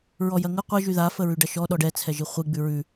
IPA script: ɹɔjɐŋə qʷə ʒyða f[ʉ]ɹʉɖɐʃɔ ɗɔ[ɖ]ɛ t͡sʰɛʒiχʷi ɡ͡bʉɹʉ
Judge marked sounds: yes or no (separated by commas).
no, yes